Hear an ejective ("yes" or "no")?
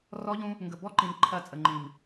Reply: yes